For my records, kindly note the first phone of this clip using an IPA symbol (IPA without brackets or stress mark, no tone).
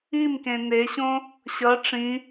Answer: i